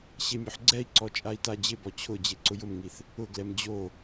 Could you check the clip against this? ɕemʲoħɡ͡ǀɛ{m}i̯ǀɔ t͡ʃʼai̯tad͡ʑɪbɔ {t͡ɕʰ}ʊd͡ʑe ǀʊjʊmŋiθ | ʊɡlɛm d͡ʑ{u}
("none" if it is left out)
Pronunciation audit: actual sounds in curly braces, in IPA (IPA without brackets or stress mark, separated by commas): none, t͡ɕʰ, o